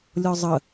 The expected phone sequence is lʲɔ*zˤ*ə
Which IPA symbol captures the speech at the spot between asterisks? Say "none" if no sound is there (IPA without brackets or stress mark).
zˤ